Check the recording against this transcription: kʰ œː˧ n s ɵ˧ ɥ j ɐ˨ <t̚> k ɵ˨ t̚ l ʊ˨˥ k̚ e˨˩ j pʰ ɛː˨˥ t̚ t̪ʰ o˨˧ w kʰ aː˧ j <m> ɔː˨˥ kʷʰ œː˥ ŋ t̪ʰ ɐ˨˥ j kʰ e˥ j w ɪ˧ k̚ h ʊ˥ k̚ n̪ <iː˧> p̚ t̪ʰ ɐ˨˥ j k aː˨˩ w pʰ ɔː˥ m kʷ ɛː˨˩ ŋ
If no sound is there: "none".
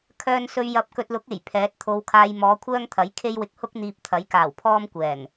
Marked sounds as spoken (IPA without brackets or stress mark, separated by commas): p̚, m, iː˧